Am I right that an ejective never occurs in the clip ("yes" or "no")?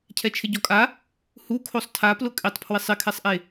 no